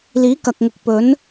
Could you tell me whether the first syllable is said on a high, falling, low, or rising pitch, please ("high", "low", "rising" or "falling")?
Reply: rising